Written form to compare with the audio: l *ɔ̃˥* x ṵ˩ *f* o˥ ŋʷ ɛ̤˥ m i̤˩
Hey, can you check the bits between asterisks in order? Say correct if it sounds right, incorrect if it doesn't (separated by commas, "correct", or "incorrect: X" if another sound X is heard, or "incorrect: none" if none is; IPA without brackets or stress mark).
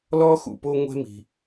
incorrect: ɔ˥, incorrect: p